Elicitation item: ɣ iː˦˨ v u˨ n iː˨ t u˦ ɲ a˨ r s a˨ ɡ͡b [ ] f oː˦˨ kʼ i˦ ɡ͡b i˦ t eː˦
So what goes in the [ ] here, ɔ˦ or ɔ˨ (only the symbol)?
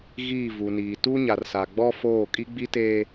ɔ˦